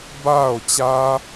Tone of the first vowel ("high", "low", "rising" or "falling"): falling